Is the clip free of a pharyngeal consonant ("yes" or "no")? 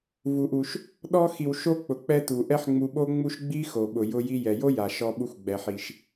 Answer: no